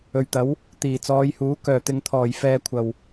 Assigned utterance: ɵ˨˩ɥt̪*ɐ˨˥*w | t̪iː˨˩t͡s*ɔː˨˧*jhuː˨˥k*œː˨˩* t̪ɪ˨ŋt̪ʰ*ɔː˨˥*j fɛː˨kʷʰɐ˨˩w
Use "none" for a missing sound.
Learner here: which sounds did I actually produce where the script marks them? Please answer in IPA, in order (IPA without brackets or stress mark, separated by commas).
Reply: ɐ˨˥, ɔː˨˧, œː˨˩, ɔː˨˩